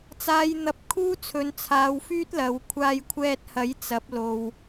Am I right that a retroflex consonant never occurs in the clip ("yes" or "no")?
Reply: yes